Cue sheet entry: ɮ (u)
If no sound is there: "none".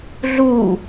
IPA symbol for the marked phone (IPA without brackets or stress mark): u